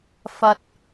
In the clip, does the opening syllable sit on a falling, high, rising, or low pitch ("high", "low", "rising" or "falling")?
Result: low